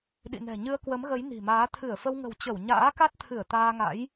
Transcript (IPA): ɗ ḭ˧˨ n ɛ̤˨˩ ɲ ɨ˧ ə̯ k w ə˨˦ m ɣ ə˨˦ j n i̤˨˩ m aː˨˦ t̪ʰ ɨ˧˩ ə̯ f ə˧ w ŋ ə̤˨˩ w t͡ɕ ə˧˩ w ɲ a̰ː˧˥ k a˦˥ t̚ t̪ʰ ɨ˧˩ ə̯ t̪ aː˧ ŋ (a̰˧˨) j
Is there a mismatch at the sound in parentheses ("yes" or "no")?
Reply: yes